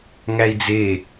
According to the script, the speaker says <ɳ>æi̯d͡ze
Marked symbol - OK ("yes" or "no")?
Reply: no